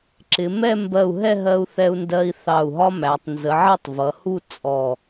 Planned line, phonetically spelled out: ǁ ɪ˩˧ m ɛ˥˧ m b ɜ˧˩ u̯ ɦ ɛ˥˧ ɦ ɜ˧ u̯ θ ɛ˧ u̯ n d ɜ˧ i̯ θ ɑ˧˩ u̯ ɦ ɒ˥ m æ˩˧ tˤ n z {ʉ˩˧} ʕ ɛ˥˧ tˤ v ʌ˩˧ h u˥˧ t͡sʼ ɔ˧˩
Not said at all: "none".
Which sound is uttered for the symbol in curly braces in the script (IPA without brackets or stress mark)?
ə˩˧